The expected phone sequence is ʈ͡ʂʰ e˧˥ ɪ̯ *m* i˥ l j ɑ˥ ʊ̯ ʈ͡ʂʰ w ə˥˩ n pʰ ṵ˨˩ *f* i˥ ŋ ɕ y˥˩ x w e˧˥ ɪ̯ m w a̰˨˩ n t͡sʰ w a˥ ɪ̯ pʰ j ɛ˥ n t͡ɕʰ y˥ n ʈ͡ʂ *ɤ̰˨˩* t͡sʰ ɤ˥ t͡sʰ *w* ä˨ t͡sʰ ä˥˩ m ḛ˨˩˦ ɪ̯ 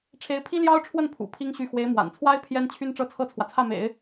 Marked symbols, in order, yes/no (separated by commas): no, no, no, yes